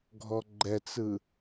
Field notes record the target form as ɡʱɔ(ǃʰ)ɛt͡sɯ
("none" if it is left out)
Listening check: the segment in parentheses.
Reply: ɡ͡ǃ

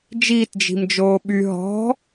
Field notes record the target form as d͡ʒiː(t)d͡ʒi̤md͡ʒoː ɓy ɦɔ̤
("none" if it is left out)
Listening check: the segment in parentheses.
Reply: t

